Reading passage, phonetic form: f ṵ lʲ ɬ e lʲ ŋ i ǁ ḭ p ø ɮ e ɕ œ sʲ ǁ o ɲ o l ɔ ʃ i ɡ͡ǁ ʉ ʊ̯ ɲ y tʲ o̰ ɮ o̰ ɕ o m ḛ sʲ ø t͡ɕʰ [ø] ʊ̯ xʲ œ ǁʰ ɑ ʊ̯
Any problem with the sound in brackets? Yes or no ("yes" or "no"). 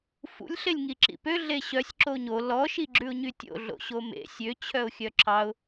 yes